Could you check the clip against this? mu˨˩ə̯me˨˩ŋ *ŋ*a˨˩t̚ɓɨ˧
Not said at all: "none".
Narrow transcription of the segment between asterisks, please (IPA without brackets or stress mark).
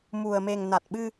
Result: n